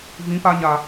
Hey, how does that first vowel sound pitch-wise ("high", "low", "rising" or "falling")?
rising